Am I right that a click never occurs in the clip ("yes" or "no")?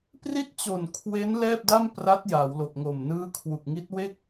yes